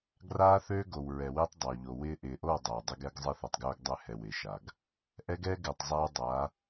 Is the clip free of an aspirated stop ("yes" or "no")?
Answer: yes